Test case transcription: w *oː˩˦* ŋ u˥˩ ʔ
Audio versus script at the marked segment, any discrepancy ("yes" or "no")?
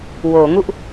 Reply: no